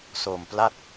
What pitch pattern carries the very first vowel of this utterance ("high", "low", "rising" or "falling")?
low